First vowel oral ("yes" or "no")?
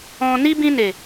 no